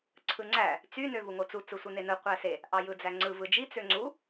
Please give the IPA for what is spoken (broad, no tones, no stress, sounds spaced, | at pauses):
ǀʰ ɯ ŋ͡ǀ æ | t͡s y n ø v u ŋ o t͡s u t͡s ɯ sʷ ɯ n e n ɯ qʷ æ s e | ʔ ɑ j ɯ d͡z æ ŋ͡ǀ ɯ v ɯ d͡ʒ i t͡s ø ŋ͡ǀ u